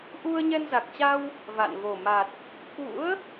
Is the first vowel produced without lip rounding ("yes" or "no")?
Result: no